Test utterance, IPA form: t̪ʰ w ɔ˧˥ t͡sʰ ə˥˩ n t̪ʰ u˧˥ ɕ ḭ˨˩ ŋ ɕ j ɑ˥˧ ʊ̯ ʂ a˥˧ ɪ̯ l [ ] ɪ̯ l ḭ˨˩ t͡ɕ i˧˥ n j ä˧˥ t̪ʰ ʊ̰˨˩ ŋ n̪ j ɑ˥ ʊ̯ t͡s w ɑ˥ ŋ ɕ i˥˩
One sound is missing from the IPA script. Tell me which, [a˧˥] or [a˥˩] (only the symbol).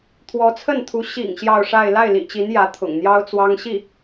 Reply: a˥˩